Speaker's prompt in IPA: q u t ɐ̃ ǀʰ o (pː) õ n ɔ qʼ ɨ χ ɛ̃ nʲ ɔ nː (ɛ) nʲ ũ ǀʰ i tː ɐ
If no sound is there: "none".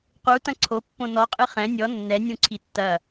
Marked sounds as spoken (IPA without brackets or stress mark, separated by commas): pː, ɛ